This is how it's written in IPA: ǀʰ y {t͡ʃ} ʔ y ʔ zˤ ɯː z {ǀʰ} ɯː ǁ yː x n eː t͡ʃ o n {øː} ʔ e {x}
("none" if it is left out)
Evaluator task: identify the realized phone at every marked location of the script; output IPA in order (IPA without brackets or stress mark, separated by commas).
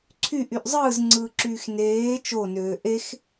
none, ŋ͡ǀ, øː, x